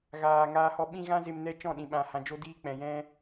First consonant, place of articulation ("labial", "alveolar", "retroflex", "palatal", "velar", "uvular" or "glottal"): velar